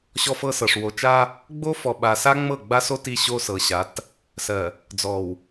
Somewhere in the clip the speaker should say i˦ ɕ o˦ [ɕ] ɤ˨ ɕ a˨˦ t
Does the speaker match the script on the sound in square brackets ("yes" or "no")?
no